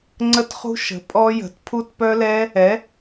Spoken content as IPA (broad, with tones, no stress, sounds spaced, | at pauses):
ŋ͡ǀ ə˦˥ t χ ṳ˦˥ ʃ ə̤˩˥ pʼ ɔ˦˥ j ə̤˩˥ t pʰ u˦˥ t p œ˦˥ l ɛ˦˥ | ɛ˩˥